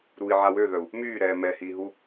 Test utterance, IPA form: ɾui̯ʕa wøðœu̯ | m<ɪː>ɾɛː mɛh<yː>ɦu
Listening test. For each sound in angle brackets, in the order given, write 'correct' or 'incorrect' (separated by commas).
incorrect, incorrect